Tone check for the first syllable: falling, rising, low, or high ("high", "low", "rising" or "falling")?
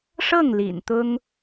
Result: falling